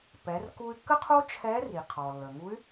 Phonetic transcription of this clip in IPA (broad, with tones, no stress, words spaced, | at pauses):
pɛ˩˧rku˧y̯kːə˥qʰo˥ t͡ʃʰɛ˧˥ri˩ qʰɔ˩lːə˩ŋu˧˥y̯